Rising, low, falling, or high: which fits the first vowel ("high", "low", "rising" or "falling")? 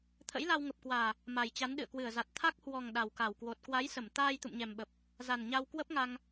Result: rising